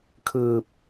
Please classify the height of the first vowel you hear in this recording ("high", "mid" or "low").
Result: high